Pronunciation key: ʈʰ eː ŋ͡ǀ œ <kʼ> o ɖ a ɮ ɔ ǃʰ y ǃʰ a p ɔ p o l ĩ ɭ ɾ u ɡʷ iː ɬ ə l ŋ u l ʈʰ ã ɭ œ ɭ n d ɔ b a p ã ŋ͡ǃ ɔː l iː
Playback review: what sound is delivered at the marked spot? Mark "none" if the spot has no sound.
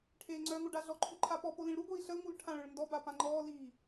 ŋ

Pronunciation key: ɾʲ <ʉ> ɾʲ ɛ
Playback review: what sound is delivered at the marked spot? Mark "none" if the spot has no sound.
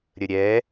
ə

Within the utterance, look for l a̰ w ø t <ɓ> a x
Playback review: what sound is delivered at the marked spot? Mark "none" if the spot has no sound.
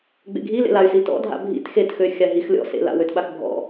ɓ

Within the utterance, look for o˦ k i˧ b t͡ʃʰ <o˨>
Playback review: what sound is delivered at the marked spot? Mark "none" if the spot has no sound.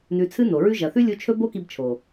o˨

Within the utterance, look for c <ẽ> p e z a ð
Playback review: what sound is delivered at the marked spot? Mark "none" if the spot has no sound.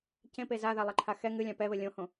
ẽ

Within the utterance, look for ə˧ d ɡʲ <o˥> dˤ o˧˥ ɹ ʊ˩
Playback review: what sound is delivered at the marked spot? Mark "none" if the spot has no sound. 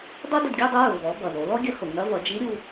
o˥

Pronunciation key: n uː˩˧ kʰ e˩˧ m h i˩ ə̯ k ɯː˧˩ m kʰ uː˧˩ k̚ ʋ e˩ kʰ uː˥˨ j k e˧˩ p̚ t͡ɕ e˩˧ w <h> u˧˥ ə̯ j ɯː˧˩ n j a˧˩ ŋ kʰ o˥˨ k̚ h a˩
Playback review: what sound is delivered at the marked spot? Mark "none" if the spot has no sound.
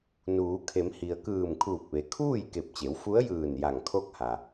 f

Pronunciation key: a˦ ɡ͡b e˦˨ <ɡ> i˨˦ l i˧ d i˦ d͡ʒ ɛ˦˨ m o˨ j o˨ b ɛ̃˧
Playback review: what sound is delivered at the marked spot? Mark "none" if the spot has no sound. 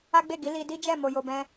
ɡ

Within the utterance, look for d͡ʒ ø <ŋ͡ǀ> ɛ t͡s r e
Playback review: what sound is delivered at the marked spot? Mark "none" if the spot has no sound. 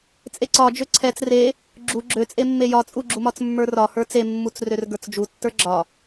ǀʰ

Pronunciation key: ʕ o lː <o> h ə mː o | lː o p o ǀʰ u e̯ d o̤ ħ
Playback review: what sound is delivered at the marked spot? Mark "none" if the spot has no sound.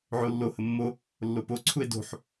o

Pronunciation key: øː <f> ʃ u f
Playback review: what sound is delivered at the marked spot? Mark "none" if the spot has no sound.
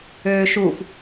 none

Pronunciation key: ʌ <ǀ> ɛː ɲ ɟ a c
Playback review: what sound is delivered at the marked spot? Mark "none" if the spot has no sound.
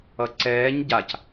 ǀ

